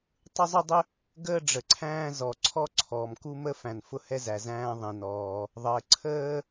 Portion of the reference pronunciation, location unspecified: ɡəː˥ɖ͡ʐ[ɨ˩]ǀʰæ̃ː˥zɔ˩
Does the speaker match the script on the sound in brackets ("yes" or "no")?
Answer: no